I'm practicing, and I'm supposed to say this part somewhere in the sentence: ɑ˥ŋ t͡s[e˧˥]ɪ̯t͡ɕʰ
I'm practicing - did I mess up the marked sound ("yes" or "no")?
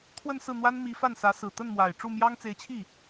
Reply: no